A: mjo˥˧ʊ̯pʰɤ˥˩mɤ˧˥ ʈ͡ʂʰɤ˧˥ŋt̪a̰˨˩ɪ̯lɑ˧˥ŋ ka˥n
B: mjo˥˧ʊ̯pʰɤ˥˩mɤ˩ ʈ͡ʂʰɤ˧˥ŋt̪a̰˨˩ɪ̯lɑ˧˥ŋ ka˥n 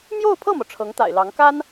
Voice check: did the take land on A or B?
B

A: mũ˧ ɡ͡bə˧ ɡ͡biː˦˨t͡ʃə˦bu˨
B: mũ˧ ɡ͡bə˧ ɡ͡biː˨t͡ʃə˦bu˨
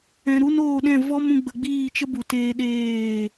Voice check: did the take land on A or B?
A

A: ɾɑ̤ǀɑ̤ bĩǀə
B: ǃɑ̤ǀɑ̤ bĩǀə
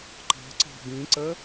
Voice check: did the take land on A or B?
B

